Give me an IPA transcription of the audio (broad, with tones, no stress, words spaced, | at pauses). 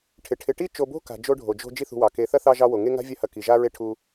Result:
ʈʰɪ˩ʈʰɪ˨ʈi˥ t͡ʃo˨bo̤˥ka̤˩ d͡ʒo˦ɖʱo˩d͡ʒo̤˦ d͡ʒi˦θṳ˨wɑ˩ke˨ θɐ˥θɑ˦ ʒɑ˦wo˩ŋe˥ ŋa̤˥vʲɐ˦hɐ˨ ki˩ʒa˦ ɹe˥ʈʰu˦